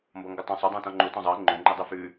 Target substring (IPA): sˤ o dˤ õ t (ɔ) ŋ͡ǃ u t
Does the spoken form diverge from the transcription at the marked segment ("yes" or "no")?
yes